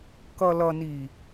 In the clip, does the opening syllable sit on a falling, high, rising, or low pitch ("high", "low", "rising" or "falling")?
low